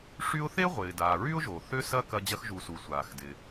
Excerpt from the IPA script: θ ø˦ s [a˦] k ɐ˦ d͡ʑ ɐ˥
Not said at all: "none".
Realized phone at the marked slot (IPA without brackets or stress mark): ɐ˦